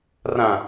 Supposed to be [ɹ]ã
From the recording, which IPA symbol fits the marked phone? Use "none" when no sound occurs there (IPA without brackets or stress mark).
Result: r